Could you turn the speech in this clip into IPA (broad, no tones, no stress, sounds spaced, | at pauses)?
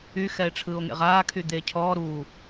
y x ɛ e̯ ʈ͡ʂʰ ɯː o̯ ŋ ḛ ʁ aː kʰ y d̪ eː cʰ ɔː ɾ uː